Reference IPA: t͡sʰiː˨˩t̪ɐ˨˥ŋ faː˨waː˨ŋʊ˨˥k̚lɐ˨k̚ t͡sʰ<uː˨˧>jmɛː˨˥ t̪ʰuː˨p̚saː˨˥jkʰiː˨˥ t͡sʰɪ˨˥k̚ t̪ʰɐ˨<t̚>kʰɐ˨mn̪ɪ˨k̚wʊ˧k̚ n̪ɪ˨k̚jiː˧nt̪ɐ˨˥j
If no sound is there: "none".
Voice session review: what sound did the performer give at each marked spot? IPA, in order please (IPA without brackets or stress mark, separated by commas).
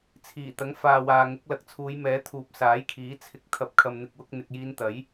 uː˨˧, p̚